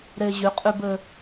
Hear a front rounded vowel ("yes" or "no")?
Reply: yes